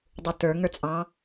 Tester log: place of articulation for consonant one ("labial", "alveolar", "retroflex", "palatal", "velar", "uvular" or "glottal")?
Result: alveolar